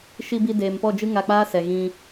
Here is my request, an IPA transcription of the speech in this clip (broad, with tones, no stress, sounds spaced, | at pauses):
ʃ i˧ b i˧ d eː˨ m p ɔ˦˨ d͡ʒ ɨ˦ ŋ a˧ k͡p aː˦ s ɛ˨ ɣ ĩ˧